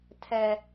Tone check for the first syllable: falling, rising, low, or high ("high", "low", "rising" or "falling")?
high